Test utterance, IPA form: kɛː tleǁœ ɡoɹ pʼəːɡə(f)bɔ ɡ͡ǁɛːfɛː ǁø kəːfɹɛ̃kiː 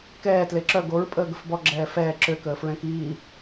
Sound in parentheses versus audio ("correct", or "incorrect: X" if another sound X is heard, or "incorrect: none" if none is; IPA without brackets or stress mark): correct